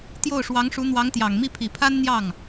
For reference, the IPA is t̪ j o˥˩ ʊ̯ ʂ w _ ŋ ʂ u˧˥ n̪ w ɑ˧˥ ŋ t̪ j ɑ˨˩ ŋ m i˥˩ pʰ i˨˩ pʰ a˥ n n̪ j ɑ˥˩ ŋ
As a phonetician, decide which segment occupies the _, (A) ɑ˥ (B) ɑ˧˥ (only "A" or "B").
B